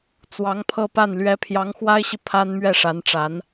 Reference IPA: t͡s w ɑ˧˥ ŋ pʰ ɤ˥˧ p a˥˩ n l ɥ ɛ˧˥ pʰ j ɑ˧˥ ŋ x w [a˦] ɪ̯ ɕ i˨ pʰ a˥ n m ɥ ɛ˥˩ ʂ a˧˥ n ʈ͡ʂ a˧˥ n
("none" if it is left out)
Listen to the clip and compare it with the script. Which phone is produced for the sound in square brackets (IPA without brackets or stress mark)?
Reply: a˥